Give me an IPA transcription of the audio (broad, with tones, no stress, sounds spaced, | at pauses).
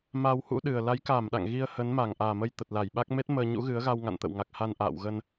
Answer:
m a˧ w h ṵ˧˥ ɗ ɨ˨˩ ə̯ l a˨˦ j k aː˧˩ m ɗ a̰˧˨ ŋ ɣ i˧ ə̯ h ə˨˦ n m a˧˩ ŋ ʔ aː˨˩ m ə˧ j t̪ ə˨˩ t̚ l a˧˩ j ɓ a˦˥ k̚ m e˦˥ t̚ m əː˧ ɲ ṵ˧˥ ɣ ɨ˨˦ ə̯ ɣ a˧ w ŋ a̰˧˨ n t̪ ə̰˧˨ w ŋ a˨˩ k̚ h a˧ n ʔ a̰ː˧˨ w ɣ ə˧ n